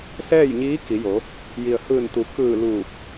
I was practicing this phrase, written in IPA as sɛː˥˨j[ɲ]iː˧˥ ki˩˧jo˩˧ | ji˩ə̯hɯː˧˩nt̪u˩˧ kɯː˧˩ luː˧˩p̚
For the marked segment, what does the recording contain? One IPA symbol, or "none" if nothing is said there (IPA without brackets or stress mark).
ɲ